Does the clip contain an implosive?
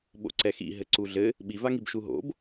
yes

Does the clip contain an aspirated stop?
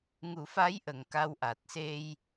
no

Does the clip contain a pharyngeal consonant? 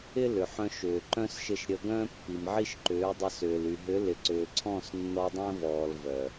yes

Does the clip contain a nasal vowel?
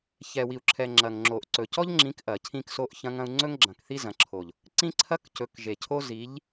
yes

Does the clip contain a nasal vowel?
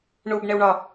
no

